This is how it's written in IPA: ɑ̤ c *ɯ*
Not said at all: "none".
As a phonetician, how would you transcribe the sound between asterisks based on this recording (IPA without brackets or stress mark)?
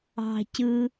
ɯ